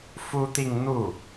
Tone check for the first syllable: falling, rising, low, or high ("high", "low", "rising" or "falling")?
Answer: high